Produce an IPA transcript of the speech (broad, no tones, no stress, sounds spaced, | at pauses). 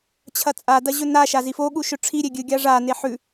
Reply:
t͡ɕʰ ɐ t͡sʼ a d ɐ ʑ ɵ n a ʃ a z i f o ɠ u ʃ ɵ ʈ͡ʂʰ i ɾʲ e ɡʲ ɨ ɡʲ a ʐ a n e ħ ʉ